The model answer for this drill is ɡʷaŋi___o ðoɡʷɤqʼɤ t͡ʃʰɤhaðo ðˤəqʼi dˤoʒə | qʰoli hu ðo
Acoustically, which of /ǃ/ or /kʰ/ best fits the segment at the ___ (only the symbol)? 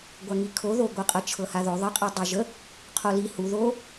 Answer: kʰ